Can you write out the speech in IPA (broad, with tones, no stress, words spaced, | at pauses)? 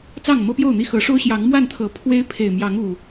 t͡sɑ˥˨ŋmɤ˦pjo˥˨ʊ̯n̪i˥˨ xɤ˨˦ʂo˦ʊ̯ɕjɑ˨˦ŋ mwa˥˨nt̪ʰɤ˨˩ pʰwe˦ɪ̯ pʰe˨˩ɪ̯mjɑ˨˦ŋ u˨˩